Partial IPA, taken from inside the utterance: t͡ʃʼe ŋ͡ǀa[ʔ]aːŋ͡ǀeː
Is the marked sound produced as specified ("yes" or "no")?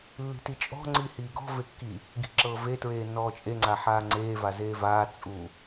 no